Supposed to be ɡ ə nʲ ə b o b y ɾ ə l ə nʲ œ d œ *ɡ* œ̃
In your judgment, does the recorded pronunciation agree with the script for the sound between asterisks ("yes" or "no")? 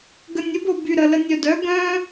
yes